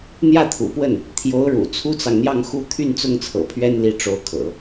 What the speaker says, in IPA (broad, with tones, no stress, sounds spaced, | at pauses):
n̪ j ä˥˩ t̪ʰ ṵ˨˩ p w ə˥˩ n | t̪ʰ j o˧˥ ʊ̯ ɻ ṵ˨˩ t͡sʰ u˥ t͡s ɑ˨ ŋ n̪ j ɑ˥˧ ŋ x u˥˧ t̪ʰ y˥˧ n t͡s ʊ˥˩ ŋ t͡sʰ ɤ̰˨˩ pʰ ɥ ɛ˥ n l i˧˥ ʈ͡ʂ o˧˥ ʊ̯ kʰ ɤ̰˨˩˦